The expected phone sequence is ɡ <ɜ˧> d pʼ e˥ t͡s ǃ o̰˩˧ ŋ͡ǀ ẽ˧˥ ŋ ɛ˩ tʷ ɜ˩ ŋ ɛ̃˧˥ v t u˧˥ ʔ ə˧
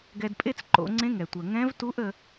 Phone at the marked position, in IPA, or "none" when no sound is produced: ɛ˧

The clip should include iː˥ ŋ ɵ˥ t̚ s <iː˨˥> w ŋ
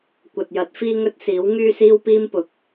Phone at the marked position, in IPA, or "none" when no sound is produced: iː˨˥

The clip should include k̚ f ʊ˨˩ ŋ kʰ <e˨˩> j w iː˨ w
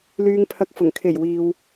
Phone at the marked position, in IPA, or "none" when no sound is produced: e˨˩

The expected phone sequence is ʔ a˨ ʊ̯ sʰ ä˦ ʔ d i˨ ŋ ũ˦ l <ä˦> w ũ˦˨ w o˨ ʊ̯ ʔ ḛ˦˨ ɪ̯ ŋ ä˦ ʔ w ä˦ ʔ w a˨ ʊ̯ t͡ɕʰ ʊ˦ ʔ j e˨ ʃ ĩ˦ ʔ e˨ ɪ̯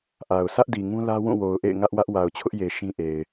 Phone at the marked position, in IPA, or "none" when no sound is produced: ä˦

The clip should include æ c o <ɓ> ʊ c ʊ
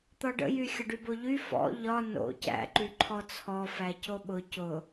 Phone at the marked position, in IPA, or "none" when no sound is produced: ɓ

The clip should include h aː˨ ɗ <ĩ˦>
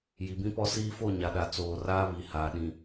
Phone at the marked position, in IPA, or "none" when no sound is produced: ĩ˨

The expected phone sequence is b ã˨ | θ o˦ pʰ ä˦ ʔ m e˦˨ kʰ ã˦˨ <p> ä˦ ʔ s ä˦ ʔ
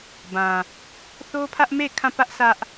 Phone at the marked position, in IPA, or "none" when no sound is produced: p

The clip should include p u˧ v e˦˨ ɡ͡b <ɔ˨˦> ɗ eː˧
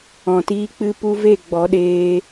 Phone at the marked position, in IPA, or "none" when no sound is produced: ɔ˨˦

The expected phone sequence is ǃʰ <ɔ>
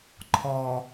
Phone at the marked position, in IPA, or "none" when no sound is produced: ɔ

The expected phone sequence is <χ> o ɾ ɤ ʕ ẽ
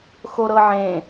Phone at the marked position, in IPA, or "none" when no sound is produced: x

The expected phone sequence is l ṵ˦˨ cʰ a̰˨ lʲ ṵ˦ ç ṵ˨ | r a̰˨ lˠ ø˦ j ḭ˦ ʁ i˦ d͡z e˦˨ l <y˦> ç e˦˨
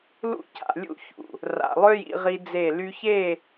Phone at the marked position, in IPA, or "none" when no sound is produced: y˦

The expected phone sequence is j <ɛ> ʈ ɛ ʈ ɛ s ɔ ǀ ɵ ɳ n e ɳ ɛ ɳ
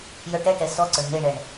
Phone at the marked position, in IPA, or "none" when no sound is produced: œ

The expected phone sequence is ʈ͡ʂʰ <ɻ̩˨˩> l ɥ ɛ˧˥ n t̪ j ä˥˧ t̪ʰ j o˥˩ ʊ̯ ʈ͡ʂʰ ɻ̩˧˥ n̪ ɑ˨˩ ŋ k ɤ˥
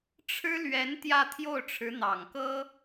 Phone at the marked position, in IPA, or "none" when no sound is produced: ɻ̩˥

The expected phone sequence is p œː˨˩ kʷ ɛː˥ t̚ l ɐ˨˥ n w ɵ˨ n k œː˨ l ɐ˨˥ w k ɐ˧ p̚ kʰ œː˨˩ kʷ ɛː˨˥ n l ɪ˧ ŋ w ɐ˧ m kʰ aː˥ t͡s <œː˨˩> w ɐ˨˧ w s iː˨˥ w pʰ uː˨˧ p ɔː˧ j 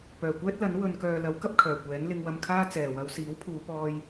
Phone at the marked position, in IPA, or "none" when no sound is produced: ɛː˨˩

